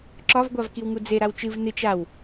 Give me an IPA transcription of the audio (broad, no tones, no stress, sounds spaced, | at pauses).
ǁ ɒ v ɡʷ a v k i w ŋ u d͡z e ɾ a w t͡ʃ ɨ v n ɨ t͡ʃ a w